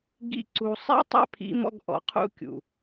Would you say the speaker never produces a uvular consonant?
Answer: no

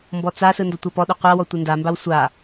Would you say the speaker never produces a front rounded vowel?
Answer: yes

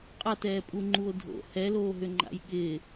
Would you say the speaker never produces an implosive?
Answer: no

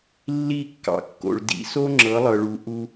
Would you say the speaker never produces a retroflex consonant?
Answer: no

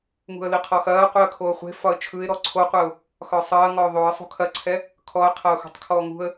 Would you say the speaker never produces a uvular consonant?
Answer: no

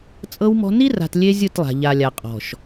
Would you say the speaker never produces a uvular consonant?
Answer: no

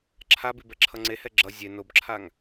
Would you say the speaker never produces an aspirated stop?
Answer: no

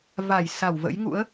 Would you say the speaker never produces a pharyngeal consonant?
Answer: yes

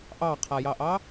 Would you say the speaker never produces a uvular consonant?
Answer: no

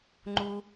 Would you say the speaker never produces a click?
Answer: no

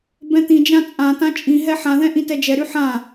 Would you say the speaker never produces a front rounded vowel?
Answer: no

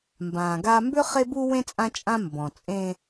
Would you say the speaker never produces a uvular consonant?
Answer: no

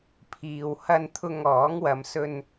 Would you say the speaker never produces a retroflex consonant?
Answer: yes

